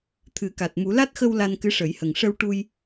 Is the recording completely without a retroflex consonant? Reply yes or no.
no